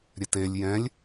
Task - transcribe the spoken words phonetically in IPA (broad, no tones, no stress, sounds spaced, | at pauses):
ɾʲ ɛ t e lʲ j ɛ̃ lʲ